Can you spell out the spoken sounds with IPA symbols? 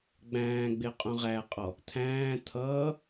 ɡ͡b æ̃ː ɡ͡b ɪ qʼ ũ ʁ æ qʼ ɔ | tʰ æ̃ː tʰ ʌː

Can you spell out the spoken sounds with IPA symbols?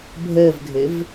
bʱ əː v ɡʱ ɘ v

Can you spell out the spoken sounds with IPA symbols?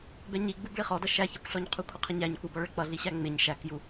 b ɛ ɲ i ɡ͡b u b ɭ i χ ɔ d ʌ ʃ æ ç ɛ kʷ ɬ ɔ ɲ qʰ u kʷʰ ə qʰ ə ɲ æ ɲ kʷ ɪ b ɔ ɭ ə ɭ k͡p ʌ ɮ i ɕ æ ŋ͡m ɪ ɲ ʃ æ k j u

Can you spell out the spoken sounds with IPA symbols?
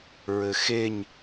ɹ ɘ x e ɲ

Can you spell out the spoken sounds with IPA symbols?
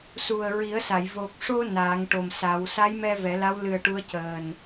s u˨˩ ə̯ ɹ i˨˩˦ ə̯ s a˨˩˨ j v o˨˩ k̚ ʂ o˧ n aː˨˩˦ ŋ ʈ o˨˩ m s a˨˩˦ w s a˧˥ j m ɛ˧ v ɛ˨˩˦ l a˧˥ w l ɨ˨˩ ə̯ ʈ u˧˥ ə̯ c əː˨˩ n

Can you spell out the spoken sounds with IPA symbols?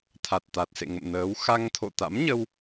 t̪ʰ a˨˩ t̚ t̪ a˨˩ t̚ s ḛ˧˨ ŋ ə̰˧˨ m n əː˨˦ w x a˧ ŋ t̪ʰ o̰˧˨ t̪ a̰˧˥ m ɲ ə˧ w

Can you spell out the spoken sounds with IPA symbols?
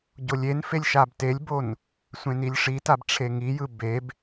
ɟ o lʲ e n f e lʲ ʃ a b t e lʲ b o n | sʷ ẽ n i lʲ ʂ i t a b ʈ͡ʂʰ e ŋ i j ɯ b e b

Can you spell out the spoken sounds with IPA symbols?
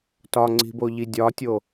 t ɒ ŋ͡ǀ i̤ b o ʎ i dʲ ɒ tʲ o

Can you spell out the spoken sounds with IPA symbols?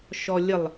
ʃ ɔ lʲ ə lˠ

